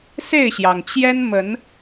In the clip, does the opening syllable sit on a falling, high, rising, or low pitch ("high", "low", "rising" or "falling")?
falling